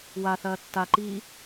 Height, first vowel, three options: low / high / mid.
low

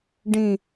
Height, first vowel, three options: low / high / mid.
high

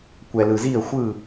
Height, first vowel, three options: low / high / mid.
mid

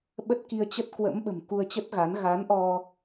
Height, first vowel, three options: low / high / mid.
mid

